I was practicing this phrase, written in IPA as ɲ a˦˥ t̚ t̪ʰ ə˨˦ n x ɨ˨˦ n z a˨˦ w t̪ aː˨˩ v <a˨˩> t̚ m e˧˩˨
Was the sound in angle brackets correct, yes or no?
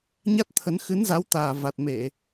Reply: yes